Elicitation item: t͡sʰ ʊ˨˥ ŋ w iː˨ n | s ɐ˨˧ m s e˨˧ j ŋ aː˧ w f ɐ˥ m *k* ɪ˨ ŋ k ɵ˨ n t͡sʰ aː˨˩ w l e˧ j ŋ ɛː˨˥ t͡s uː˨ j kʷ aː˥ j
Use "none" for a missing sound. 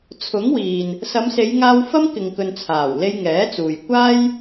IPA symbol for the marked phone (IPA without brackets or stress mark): k